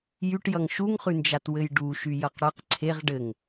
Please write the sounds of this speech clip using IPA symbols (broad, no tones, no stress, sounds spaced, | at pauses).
j y ʈ j ʌ ŋ ʃ u ŋ χ ʉ n d͡ʒ a t w ɘ j ɖ u ʃ y j ʌ q ɽ ʌ q ǀʰ e ʁ ɖ ɘ ŋ